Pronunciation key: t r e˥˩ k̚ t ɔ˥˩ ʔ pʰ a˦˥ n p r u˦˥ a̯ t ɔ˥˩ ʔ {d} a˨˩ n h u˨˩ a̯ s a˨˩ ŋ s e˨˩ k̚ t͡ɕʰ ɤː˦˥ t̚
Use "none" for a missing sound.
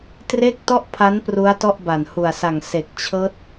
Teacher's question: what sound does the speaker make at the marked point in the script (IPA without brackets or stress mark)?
b